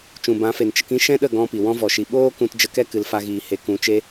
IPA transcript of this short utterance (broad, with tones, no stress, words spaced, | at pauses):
t͡ʃũ˨bã˨˦fe˨n t͡ʃə˧kĩ˦ʃɛ̃˦ɗə˦˨ ɡɔ̃˦pi˨ wɔ̃˦ vɔ˧ʃi˧ ɓoː˦kũ˧td͡ʒə˧ kɛ˦ kɨ˧lfa˦ɣiː˧ he˧ kũ˨˦ t͡ʃe˦